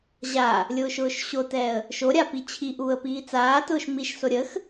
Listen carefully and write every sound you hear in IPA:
ʑ a | lʲ ʊː ʃ ʊː ʃ ɕ o t ɛ ə̯ | ʃ o ɾʲ a p i t͡ɕʰ i ʔ uː ə̯ p iː t͡s aː t ʊː ʃ m i ʃ s o ɾʲ ə x

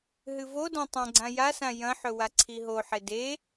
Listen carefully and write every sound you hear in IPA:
ɦ ɨ v o d ã tˤ ɐ̃ ɡ͡ǀ ã j a s ã j ɐ̃ ħ ɵ w a ǀʰ i ɦ o ħ e d e

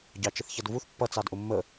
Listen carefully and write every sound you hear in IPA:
ɟ ɑ t͡ʃ ə θ ç ʌ d v u θ pː ʌ t͡s ɑ d ʔ ʊ mː ə

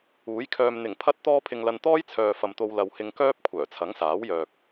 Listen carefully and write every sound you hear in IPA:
uː˨˥ j kʰ œː˧ m n̪ ɪ˨˩ ŋ pʰ ɐ˥ t̚ t̪ ɔː˥ pʰ ɪ˧ ŋ l ɐ˧ n t̪ ɔː˥ j t͡sʰ œː˨ f ɐ˨ m t̪ o˧ w l ɐ˨ w h ɪ˧ ŋ k œː˥ p̚ kʷʰ œː˨˩ t͡sʰ ɐ˨˥ ŋ s aː˨˥ w j œː˨ k̚

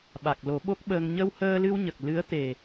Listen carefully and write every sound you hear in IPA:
ɓ a˨˩ k̚ l o˨˩˦ ɓ o˦˥ k̚ ɓ əː˧ ŋ ɲ ə˧ w h əː˧ l ɨ˧ w ɲ ə˨˩ k̚ l ɨ˧˥ ə̯ t̪ e˨˩

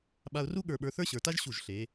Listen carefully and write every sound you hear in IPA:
ɓ a˧ ʊ̯ r u˥ ɠ ə˞˧˩ ɓ ə˞˧ θ ə˞˥ ɕ ə˞˩˧ t a˥ ʒ ɕ u˧˩ ʒ ɬ e˩˧

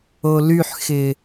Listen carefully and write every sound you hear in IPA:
o l y ħ x ɪ

